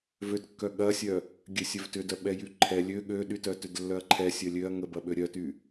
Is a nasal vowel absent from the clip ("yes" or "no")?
yes